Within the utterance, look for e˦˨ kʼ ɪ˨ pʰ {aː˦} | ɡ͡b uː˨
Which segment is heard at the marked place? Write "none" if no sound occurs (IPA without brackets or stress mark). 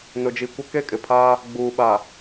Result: aː˦